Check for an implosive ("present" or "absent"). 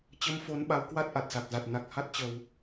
present